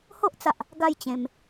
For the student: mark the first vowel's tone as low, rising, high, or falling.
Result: high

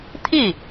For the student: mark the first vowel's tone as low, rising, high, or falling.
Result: falling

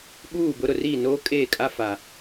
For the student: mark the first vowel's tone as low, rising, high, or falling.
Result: falling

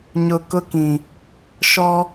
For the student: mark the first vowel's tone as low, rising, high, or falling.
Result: low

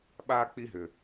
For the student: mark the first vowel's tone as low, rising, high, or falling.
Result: high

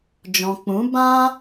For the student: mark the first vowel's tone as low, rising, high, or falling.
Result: low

